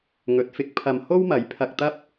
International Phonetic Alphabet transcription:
ŋ ɵ˨˥ t̚ f ɪ˨˥ k̚ pʰ ɐ˨ m h o˥ w m ɐ˨˥ j pʰ ɐ˧ k̚ t̪ ɐ˥ p̚

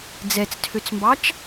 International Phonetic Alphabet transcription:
d͡z ɛ t͡s tʰ ø t͡s m b ɑ t͡ʃ

